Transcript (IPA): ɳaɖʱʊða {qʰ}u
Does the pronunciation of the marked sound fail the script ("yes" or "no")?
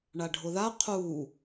no